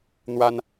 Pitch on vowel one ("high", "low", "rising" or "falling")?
high